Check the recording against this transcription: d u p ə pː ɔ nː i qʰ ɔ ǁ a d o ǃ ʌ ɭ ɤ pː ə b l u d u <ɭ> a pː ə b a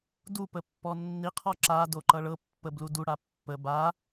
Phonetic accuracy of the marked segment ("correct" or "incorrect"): incorrect